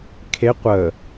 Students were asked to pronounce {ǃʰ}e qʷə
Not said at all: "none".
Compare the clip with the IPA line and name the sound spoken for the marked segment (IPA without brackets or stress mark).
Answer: kʰ